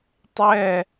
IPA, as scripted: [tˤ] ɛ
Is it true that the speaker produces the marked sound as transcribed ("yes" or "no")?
yes